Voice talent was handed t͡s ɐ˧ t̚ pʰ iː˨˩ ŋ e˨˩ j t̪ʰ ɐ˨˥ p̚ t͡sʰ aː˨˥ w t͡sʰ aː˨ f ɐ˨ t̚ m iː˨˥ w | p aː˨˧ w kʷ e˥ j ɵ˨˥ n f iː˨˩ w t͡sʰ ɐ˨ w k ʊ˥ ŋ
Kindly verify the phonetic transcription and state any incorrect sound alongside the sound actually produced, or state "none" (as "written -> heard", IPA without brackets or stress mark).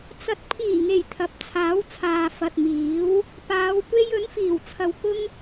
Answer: none